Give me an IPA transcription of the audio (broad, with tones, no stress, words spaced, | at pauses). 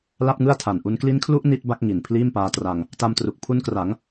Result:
la˥˩p̚ŋɯ˥˩a̯tʰa˨˩nʔu˦˥n kli˦˥nkʰlu˦˥ʔ ni˦˥t̚ba˦˥k̚ ŋi˨˩n pʰliː˥˩mpaː˦˥tra˧ŋ | ta˧mtru˨˩k̚pʰu˦˥nkra˩˦ŋ